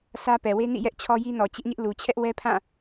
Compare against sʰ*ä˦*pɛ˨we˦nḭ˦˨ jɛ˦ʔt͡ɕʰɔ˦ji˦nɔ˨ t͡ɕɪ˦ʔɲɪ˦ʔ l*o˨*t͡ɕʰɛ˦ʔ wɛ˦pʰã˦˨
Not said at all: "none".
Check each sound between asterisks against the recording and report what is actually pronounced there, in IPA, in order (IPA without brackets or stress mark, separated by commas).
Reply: ä˦, u˨